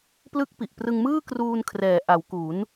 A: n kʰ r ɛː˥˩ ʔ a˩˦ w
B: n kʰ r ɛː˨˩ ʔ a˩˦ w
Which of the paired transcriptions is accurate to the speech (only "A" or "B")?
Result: B